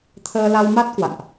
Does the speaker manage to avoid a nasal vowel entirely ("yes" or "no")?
yes